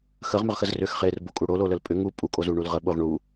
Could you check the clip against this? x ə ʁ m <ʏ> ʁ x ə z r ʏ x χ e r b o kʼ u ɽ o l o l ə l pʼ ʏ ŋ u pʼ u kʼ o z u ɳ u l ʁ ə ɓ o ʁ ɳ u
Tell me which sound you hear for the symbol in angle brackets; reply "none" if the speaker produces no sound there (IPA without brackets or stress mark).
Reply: ʏ